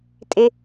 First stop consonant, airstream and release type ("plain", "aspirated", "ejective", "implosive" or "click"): ejective